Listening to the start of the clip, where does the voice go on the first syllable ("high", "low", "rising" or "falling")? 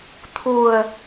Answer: low